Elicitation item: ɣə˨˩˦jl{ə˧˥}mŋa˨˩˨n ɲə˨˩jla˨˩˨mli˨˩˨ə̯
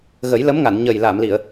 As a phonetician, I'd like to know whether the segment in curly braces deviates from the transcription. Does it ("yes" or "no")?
no